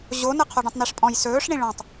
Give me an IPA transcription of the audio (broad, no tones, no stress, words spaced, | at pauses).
ʑonə qʰoɖɔ̃tˤniʂpʼɔ̃j sɵːʂɳĩ ɭɔ̃tˤ